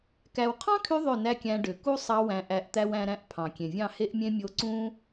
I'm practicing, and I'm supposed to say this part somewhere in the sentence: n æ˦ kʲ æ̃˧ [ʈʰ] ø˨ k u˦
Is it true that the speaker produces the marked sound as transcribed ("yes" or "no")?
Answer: no